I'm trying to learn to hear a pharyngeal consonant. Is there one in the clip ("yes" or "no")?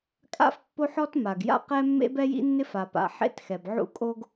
yes